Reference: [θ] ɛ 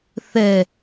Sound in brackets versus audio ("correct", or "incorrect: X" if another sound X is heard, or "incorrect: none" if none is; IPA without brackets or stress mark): correct